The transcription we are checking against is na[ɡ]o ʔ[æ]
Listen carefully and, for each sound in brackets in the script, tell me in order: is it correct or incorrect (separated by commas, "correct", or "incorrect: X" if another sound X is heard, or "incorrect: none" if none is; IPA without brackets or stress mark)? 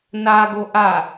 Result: correct, incorrect: a